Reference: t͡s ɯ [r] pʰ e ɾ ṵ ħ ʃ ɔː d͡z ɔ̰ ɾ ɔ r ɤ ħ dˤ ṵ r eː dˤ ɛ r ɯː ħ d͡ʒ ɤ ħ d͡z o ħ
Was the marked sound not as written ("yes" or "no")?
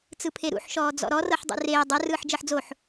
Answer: yes